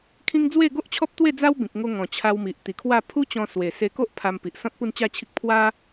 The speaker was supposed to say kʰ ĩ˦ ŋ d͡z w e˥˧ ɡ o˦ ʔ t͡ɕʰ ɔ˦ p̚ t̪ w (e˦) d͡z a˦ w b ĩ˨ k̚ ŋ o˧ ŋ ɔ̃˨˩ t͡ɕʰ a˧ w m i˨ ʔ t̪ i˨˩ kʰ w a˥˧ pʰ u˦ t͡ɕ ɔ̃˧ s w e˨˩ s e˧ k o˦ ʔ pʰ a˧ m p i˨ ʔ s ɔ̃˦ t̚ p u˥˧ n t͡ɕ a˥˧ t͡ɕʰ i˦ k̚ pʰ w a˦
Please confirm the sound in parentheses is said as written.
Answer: no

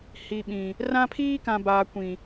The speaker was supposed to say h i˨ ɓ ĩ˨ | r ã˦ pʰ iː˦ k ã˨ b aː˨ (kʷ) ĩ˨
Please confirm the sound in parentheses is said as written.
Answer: yes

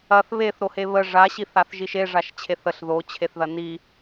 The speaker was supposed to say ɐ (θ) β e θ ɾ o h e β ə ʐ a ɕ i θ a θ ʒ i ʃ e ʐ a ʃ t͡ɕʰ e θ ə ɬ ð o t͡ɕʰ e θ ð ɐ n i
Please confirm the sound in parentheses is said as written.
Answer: yes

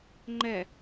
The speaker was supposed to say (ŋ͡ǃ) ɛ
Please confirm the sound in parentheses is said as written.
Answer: yes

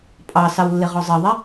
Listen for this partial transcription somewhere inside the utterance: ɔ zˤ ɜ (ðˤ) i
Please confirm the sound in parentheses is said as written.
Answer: yes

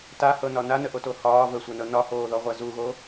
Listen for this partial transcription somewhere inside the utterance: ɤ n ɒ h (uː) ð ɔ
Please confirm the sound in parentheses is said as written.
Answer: no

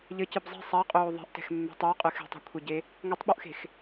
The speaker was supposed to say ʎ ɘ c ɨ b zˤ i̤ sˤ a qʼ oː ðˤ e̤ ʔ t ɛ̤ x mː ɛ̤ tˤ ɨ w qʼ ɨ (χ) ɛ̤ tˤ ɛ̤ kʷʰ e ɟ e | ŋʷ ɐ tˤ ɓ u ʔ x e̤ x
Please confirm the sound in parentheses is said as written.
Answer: no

